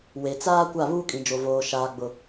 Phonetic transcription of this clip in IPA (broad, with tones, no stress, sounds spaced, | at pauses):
w e˨ t͡s aː˦ kʷ a˦˨ β uː˦ kʼ ĩ˨ d͡ʒ o˨ v oː˨ ʃ aː˨ ɡ͡b ʊ˨